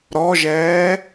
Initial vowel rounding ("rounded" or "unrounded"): rounded